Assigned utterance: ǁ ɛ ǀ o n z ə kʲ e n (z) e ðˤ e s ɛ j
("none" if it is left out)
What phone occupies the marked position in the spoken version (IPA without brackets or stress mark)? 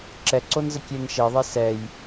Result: ʃ